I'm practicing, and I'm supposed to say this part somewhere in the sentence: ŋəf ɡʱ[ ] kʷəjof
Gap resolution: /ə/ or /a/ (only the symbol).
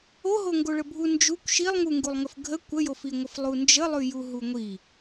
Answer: ə